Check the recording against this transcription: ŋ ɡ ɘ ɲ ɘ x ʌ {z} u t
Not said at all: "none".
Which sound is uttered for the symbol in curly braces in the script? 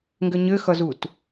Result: z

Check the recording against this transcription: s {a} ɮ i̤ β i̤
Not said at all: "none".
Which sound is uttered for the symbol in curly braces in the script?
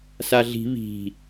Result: a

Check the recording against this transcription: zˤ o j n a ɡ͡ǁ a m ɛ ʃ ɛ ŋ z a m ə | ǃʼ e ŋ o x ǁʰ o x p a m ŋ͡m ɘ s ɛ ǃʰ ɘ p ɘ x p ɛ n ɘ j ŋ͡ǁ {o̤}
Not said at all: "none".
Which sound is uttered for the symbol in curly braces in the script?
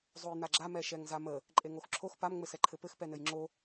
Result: o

